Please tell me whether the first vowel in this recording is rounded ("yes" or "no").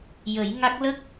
no